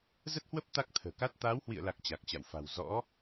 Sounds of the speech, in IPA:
z ə˦˥ t̚ h w ə˦˥ p̚ t̪ a˦˥ k̚ t̪ʰ ə̤ː˨˩ k a˦˥ t̚ t̪ aː˨˦ w h w ḭ˧˨ ə̯ l a˨˩ k̚ t͡ɕ a˨˩ k̚ t͡ɕ a̰˧˨ w f a̤˨˩ w z ɔ̰˧˥

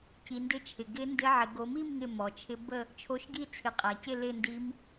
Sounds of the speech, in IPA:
c i˨˦ n d ɪ˦˥ t͡ʃʰ ɪ˨ ɡ ɪ˦˥ n d ɪ˦˥ ʕ ɪ˨˦ ɡ o˨˦ m i˥˧ m ŋ ɪ˥˧ m ɔ˨ t͡ʃʰ ɪ˦˥ b ə˥˧ | t͡ʃʰ o˦˥ ʃ ɡ i˥˧ t͡sʰ ɪ˨˦ qʼ æ˨ c ɪ˥˧ l ɪ˥˧ n d i˦˥ m

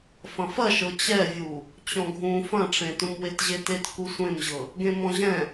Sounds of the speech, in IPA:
f ɐ̃ f ɐ ʃ ɤ t͡ɕ ɛ vʲ u | t͡ɕ ɔ̃ ɡʱ ũ f ɐ̃ ʈ͡ʂ ẽ t ũ m w e t ʑ e t e t k u sʷ ẽ m ʑ ɤ | ɡ ẽ m ɔ̃ ʑ ɛ̃

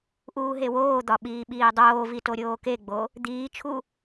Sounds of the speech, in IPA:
ʔ uː ɦ e w oː d̪ ɒ ɓ iː ɓ iː dˤ oː v i t o ɾʲ oː k e ɡ͡b o | d̪ iː t͡ʃʰ u

